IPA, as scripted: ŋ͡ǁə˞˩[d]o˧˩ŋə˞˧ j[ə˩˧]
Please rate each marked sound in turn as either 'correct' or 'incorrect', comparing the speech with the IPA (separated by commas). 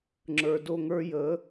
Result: correct, correct